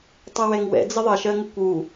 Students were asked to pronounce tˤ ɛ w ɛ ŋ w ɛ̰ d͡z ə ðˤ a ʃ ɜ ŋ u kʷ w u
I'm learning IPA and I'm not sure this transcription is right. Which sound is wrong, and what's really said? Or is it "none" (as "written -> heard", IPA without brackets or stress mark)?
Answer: a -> ʌ